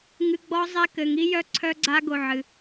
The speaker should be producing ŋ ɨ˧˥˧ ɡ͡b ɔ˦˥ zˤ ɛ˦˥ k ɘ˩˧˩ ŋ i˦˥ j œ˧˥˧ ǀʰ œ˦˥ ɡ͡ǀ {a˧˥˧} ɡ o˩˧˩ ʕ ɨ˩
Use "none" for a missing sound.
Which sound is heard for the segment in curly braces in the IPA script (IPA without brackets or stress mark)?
a˦˥